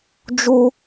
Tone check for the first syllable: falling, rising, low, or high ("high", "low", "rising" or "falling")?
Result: high